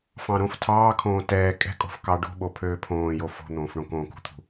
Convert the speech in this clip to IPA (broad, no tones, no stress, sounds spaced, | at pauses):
f ɑ̃ ɾ õ f tʰ ɑː kʰ õː t ɛː kʼ ɛ̤ kʼ o̤ f k ɑ ɖ o̤ ɓ o pʰ øː pʰ õː j o f o̤ n̪ õː f ɳ õ k õː k ṳ t̪ʰ ṳ